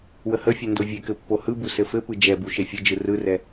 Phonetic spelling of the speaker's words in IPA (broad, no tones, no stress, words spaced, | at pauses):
wəhəfʲɛ ndovʲekɘ pːohɯbu sɘfɘpɯ d͡ʒɛbu ʃefʲɘd͡ʒɯ rɯrɛ